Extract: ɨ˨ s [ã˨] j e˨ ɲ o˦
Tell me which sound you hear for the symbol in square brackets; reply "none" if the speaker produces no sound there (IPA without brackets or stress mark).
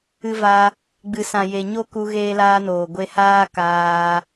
ã˨